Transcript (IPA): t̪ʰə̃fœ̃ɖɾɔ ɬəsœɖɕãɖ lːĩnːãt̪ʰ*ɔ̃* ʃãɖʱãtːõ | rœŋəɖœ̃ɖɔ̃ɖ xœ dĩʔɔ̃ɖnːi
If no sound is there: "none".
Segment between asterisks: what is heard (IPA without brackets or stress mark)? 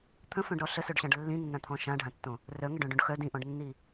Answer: ɔ̃